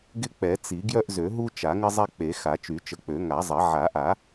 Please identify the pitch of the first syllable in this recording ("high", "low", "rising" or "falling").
high